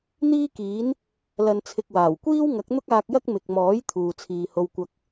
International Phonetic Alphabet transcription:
n̪ iː˥ k iː˨˥ n | l ɐ˧ n t͡sʰ ɪ˧ k̚ w aː˨˩ w kʷ iː˥ w ŋ ɐ˨˥ k̚ n̪ ʊ˥ k̚ aː˧ k̚ j ɐ˥ k̚ m ɪ˨ k̚ m ɔː˨˥ j t̪ʰ uː˨ t͡sʰ iː˨ h o˧ w kʷ ɐ˧ k̚

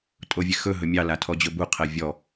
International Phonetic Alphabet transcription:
tʼ o vʲ e x ɵ ɦ ɵ mʲ ɑ l a tʰ ɔ d͡ʑ ɵ b u qʰ ɛ vʲ ɔ

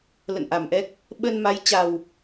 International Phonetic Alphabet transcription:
l ə̰˧˨ n ʔ a˧˩ m ʔ ɛ˦˥ k̚ | ɓ ə˧ n m a˨˦ j t͡ɕ a˨˩ w

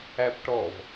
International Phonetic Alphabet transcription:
æ p ʈ ɔ v

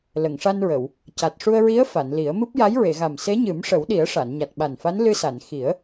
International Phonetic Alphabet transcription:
l ə˨˩˨ ŋ ʂ a˧ n ɹ ə˨˩˨ w | c a˨˩ t̚ ʂ u˧ ə̯ ɹ i˧˥ ə̯ f a˨˩˨ n l i˨˩˦ ə̯ m ɨ˦˥ p̚ j a˧˥ j ɹ e˨˩˨ ɣ a˨˩ m s e˧˥ ɲ ɨ˨˩˦ m ʂ ə˨˩˦ w ɗ i˨˩˦ ə̯ ʂ a˨˩˨ n ɲ a˨˩ t̚ ɓ a˨˩ n f a˧˥ n l ɨ˧ s a˨˩˨ n x i˨˩˦ ə̯

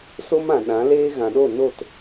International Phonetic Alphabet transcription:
s o˦ m ã˨ ɗ ã˨˦ l eː˦ ɣ ã˨ ɗ o˦˨ n o˦˨ t

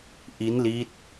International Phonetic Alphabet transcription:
ʔ i˦˥ n l i˦˥ t̚

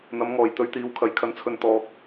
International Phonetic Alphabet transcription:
n̪ ɐ˨˧ m ŋ ɔː˨˩ j t̪ ɵ˧ ɥ t̪ iː˨˧ w kʰ ɐ˨˧ j kʰ ɐ˧ n t͡sʰ ɵ˧ n t̪ ɔː˧ k̚

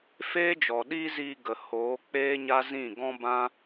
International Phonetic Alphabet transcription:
f eː˦ d͡ʒ ɔ˨ ɗ iː˦ z iː˧ ɡ ə˨ h oː˨˦ k͡p eː˦ ɲ a˦ z ĩ˦˨ ɡ ɔ̃˦ b ã˦

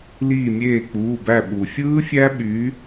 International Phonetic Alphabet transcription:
l iː˧˩ mʲ eː˧˩ k͡p uː˩˧˩ b æ˧˩ ɓ u˩ fʲ ɯː˦˥ fʲ æ˦˥ ɓ y˨˦

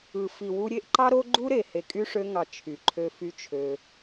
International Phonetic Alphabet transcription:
ɯ˨ f i˨ w u˧ ɾʲ e˦ ʔ ǃ ɑ˦ ɾ o˦ ɡ͡ǃ u˦ ɾ e˨ h e˨ kʼ y˧ ʂ ø˧ ŋ ɑ˨ t͡ʃʰ y˨ ǃʰ ø˧ f y˦ t͡ʃʰ ø˧

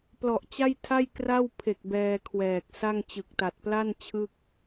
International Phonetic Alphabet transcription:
p l ɔ˨˩ ʔ t͡ɕ a˥˩ j tʰ a˥˩ j k r a˥˩ w pʰ e˨˩ k̚ b ɛː˧ kʰ w ɛː˨˩ k̚ s a˥˩ ŋ t͡ɕ ɯ˨˩ k̚ t a˨˩ t̚ p l a˥˩ n t͡ɕʰ ɯ˥˩ k̚

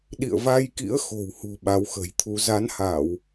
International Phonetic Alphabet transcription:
ɗ ḭ˧˨ ə̯ v a˧ j k ḭ˧˥ ə̯ x o̤˨˩ w h ṳ˨˩ ɓ a˨˦ w x ə̤˨˩ j t̪ʰ u˨˦ z a˨˦ n h a˧˩˨ w

